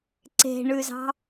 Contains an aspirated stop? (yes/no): no